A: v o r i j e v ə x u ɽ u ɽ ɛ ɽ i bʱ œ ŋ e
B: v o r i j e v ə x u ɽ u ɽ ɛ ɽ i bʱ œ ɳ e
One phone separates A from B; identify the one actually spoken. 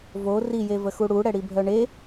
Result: B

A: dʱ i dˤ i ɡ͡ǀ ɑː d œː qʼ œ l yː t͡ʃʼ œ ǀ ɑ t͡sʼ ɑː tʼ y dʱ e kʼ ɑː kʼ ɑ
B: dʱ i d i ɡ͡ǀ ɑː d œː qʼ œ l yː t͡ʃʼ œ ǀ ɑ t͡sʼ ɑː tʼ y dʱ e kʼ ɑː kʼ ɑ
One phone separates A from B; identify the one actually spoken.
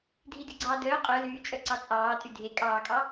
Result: B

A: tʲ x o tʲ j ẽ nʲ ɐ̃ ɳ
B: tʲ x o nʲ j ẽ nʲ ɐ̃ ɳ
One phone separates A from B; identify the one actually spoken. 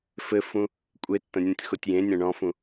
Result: A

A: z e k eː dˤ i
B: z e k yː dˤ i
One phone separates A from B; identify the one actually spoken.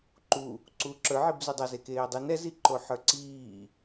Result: A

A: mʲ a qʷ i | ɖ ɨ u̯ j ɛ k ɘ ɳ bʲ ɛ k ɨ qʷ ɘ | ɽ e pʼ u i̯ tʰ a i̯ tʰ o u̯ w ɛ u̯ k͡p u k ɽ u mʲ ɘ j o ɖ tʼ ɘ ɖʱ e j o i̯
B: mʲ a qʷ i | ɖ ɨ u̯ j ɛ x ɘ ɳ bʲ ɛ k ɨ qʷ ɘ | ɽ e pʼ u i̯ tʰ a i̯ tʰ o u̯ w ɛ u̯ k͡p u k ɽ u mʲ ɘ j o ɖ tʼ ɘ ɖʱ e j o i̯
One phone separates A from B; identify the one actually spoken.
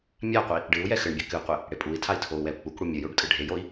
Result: B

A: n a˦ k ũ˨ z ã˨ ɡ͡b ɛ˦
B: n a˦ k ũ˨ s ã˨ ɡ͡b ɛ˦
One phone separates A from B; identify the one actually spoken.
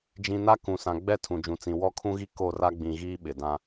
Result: B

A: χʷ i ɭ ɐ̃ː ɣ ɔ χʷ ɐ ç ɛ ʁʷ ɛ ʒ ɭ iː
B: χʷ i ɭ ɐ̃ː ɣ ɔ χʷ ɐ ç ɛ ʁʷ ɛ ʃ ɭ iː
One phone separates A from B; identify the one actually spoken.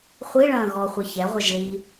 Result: A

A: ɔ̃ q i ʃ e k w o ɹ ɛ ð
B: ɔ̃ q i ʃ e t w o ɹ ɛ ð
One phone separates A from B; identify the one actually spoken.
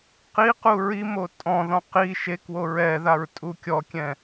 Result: A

